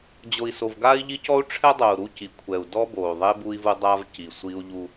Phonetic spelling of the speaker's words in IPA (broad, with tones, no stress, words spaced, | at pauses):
d͡ʑo˨i̯so˨vɡa˦i̯ʎi˦ cɔ˦u̯ʈ͡ʂʰɛ˦dˤo˨u̯ ɾu˦ci˨˦kʷʰɛ˨u̯ dɔ˦bo˨u̯ðˤe˦ bu˦i̯vu˦ dˤa˦v ci˨sʷi˦u̯ ʎu˦